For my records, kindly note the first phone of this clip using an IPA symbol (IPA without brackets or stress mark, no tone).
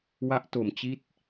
w